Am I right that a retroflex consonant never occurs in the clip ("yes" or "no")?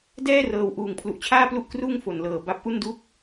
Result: yes